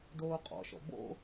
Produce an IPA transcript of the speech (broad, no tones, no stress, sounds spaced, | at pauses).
d oː qʼ ɔ̰ ʃ ɔ̰ b o̰